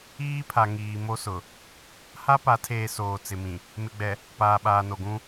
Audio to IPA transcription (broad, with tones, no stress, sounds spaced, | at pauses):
iː˦ pʰ a˨ ŋ iː˨ m o˦ s ʊ˨ | h a˦ p a˨˦ tʰ eː˨ s oː˨ t͡s ɪ˨ m ĩ˨ | m ɪ˨ ɡ͡b ɛ˨ | p aː˨ ɓ aː˨ n o˨ ɡ ũ˦